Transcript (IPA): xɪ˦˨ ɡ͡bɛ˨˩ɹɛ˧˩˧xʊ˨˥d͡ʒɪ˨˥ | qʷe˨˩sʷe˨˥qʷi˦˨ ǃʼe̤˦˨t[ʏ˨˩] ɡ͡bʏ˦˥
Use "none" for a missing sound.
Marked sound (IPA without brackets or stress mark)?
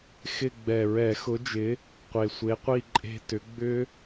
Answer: ʏ˨˥